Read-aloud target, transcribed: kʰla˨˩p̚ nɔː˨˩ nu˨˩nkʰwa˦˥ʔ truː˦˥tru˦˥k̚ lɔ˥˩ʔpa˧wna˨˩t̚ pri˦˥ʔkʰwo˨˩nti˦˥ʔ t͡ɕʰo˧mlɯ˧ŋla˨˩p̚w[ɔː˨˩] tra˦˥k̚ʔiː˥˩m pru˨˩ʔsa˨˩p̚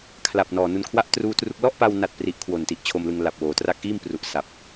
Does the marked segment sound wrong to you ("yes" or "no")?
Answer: yes